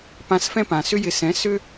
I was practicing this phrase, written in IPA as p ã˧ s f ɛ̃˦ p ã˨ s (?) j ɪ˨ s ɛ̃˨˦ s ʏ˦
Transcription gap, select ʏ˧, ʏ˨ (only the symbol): ʏ˧